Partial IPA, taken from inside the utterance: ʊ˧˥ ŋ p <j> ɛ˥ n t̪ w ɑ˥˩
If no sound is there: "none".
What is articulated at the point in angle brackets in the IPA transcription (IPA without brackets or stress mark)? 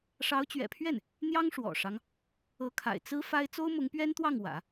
ɥ